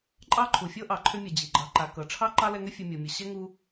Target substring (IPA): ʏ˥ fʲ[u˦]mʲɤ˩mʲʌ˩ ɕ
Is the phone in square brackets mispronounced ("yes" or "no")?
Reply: yes